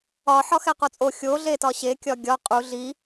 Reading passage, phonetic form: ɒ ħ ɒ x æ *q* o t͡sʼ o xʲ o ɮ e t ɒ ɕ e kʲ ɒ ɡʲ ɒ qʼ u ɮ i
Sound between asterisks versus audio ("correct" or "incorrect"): correct